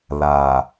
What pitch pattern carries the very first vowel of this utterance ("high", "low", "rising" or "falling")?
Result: low